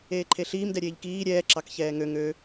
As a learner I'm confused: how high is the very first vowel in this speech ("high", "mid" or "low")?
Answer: mid